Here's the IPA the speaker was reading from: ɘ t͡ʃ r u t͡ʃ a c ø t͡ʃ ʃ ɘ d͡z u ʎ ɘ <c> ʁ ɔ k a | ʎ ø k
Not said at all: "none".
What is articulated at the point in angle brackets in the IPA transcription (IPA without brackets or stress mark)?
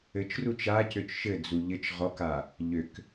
t͡ʃ